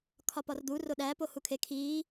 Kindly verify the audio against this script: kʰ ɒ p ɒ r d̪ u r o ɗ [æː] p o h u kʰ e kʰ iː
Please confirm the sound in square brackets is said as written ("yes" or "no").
yes